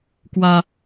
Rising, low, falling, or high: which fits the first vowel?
high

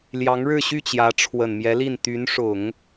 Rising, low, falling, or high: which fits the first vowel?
rising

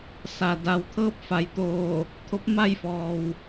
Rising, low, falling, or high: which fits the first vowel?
low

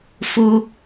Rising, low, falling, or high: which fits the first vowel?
high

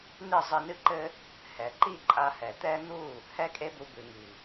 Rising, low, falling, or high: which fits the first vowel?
falling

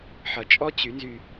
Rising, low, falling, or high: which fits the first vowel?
low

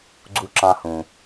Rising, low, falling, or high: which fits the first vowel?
high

